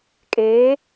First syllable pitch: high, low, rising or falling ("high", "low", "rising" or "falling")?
rising